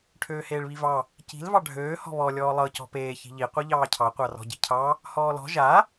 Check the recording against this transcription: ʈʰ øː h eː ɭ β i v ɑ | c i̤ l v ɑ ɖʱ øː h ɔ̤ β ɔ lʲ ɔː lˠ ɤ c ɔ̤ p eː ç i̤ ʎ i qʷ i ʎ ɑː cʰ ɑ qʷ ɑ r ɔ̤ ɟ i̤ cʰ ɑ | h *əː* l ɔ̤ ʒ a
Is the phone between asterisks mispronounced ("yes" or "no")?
yes